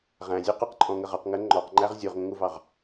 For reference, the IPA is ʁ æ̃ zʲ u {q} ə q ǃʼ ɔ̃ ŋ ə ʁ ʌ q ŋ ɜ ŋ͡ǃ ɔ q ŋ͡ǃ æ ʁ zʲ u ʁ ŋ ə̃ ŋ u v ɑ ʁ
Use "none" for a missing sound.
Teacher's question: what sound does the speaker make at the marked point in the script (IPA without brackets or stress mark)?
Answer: q